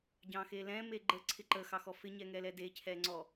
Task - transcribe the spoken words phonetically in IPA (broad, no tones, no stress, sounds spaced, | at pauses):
ɟ ɑ̃ x e l ɛ̃ m e ɡ͡ǃ ə ǀʰ ɪ ǃ ə x ɑ x ɔ f ɪ ɲ ɛ ŋ ɛ l ɛ d e cʰ ɛ ŋ͡ǀ ɔ